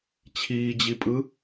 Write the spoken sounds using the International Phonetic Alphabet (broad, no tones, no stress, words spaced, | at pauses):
t͡ɕʰiːd͡ʑipʼɯ